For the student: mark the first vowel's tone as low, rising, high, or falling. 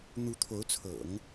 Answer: rising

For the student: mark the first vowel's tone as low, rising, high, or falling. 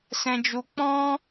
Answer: high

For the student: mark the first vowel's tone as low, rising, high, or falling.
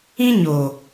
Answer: high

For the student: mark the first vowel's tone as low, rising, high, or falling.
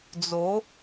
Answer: rising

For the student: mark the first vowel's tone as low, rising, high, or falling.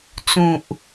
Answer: low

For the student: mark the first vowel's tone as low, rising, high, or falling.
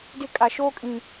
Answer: high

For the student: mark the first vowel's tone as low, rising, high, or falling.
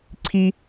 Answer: high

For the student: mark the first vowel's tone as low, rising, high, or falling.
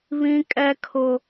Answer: high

